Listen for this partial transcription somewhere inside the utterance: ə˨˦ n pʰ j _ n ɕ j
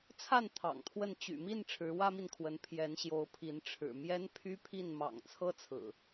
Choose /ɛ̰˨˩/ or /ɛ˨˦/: ɛ˨˦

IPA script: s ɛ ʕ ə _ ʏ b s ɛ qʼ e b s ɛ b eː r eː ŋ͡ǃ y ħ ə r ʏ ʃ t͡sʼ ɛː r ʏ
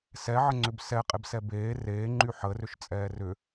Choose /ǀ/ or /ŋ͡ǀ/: ŋ͡ǀ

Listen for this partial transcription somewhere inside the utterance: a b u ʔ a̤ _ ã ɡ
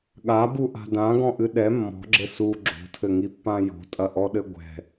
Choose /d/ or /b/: d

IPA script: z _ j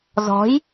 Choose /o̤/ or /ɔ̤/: ɔ̤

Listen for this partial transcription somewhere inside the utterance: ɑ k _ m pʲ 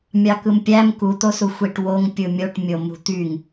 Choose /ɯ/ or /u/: ɯ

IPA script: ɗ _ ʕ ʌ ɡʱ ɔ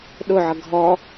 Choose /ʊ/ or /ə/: ʊ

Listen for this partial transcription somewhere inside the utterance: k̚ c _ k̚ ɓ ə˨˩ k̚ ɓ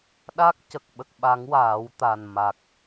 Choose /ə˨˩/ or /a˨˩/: ə˨˩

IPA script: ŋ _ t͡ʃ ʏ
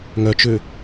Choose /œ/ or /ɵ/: œ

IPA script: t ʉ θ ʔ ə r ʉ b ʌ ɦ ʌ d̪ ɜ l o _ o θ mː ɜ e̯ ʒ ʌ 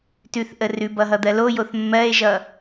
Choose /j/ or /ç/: j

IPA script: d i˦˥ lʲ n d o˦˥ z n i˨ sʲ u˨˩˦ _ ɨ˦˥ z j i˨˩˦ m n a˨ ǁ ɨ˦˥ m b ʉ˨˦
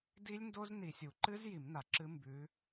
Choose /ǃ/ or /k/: ǃ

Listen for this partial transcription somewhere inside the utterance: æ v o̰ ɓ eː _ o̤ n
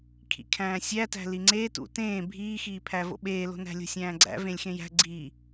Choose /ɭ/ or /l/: l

